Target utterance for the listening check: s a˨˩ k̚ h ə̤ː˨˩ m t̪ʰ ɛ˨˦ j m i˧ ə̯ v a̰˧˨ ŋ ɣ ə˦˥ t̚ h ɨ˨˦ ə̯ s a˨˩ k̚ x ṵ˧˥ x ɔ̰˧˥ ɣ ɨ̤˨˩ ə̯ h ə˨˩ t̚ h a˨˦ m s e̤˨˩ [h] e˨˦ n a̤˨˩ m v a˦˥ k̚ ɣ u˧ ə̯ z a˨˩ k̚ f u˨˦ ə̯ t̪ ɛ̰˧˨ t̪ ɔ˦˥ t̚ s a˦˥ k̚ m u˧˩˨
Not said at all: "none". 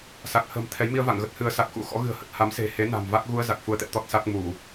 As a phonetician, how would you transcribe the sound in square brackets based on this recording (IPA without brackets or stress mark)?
h